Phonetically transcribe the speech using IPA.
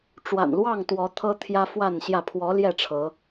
ʈ͡ʂwa̰˨˩nlwɑ˥˨ŋ t̪wɔ˨˦ t̪ʰɤ˦t̪ʰjä˦fwa˥˨nɕjä˥˨ pʰwɔ˨˦ ljɛ˥˨ʈ͡ʂʰɤ˨˦

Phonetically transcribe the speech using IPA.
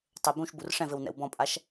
tˤɘ bũʃbur ʂɛ̃vɘw nɛ̰wbɔ̃pʼaʃ

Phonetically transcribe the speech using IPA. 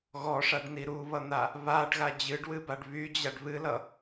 ɣɔʂaɖni ɾuβʌn̪a | βaɖɣa d͡ʑɨɖwɨbaɖ βyd͡ʑaɖ βɨlʌ

